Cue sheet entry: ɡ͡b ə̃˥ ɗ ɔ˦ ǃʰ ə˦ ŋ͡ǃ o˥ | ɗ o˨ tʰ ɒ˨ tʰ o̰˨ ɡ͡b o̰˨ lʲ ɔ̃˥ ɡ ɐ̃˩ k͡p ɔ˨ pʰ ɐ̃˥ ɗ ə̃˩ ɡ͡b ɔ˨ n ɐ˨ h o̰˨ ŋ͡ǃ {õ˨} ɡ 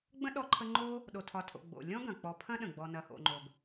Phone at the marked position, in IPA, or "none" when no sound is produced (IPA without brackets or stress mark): o˨